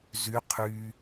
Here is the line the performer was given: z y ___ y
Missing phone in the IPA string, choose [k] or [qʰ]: qʰ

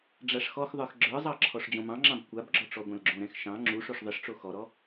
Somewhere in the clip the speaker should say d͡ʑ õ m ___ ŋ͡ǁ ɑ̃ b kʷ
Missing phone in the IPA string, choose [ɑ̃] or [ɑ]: ɑ̃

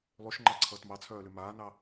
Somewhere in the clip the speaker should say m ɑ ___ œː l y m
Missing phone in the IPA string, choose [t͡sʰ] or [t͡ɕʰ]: t͡sʰ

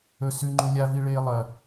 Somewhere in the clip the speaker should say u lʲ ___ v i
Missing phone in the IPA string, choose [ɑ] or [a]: a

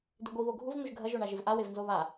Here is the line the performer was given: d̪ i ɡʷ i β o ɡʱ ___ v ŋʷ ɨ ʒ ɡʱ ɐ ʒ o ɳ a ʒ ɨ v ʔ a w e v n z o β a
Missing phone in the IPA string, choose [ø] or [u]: u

